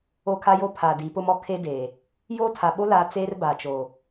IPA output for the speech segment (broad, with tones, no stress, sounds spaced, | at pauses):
o˦ kʰ a˦ j o˦ pʰ a˨ d i˨˦ p ʊ˦ m ɔ˦ kʰ e˦ d e˨ | j oː˦ tʰ a˨ ɓ o˦ l a˨˦ t͡s eː˦ r b a˨ t͡ʃ o˨